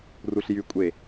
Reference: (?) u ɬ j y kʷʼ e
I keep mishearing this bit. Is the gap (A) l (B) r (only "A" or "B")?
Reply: B